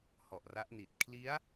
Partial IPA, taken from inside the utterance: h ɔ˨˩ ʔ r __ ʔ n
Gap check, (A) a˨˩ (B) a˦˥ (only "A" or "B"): B